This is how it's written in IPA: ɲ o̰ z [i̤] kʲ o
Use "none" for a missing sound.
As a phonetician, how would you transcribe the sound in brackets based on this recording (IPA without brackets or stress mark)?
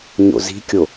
i̤